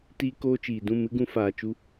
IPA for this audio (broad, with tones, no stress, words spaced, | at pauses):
tiː˧koː˧t͡ʃiː˨dũ˦˨ mɨ˦ɡũ˧faː˨t͡ʃu˦